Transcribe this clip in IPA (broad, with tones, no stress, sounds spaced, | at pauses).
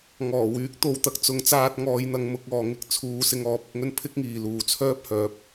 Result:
ŋ ɔː˨˩ w yː˨˥ k̚ t̪ o˨ w t̪ ɐ˨˥ k̚ t͡s ʊ˨˧ ŋ t͡s aː˧ t̚ ŋ ɔː˨˧ j n̪ ɐ˨˧ ŋ m ʊ˨˥ k̚ ɔː˨ ŋ ɪ˥ k̚ t͡sʰ uː˧ s ɪ˧ ŋ ɔː˨˥ p̚ ɪ˧ k̚ ŋ ɵ˥ n pʰ ɪ˥ k̚ ŋ iː˨ l uː˨ t͡sʰ œː˥ p̚ h œː˨˥ p̚